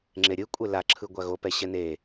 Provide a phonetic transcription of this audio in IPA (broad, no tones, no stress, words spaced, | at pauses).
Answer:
ŋ͡ǁeɾʲɯkʷʼe laǁʰɯ ɡʷaɣopɛ ɕɛne